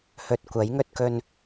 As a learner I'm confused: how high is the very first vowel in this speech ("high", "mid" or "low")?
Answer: mid